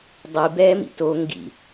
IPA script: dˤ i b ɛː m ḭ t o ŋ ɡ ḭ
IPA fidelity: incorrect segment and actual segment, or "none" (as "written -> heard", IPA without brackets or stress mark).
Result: none